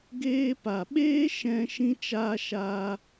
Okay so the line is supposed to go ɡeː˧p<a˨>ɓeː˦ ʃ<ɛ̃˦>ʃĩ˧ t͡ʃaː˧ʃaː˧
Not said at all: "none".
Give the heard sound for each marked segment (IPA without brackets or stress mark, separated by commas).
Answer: a˨, ɛ̃˧